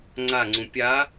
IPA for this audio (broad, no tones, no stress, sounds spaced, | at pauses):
ŋ͡ǀ a ŋ͡ǀ ũ pʲ a